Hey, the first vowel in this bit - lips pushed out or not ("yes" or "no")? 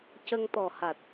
no